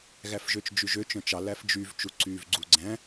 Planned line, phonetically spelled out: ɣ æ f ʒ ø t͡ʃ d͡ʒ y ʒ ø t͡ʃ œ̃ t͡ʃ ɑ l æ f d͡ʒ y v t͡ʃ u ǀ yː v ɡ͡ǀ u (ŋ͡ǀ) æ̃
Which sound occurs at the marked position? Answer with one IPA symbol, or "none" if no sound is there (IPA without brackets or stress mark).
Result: ɡ͡ǀ